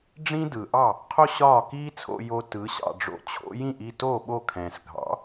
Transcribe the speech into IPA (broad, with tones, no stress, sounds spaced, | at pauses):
ɖ͡ʐ ĩ˥ d ɯ˩ ʔ ɑ˥˩ | qʰ o˥ ɕ ɒː˥˩ k iː˥ t͡sʰ o̰˧ j o˧ t ɯ˩˥ ɕ ɑ̰˥˩ ɖ͡ʐ o̰˧ t͡ɕʰ o̰˥ j ĩ˥˩ ʔ i˥˩ t o˥˩ ɓ o˥˩ kʰ ɛ̃ː˩ s ɡʱ ɑ̰˩˥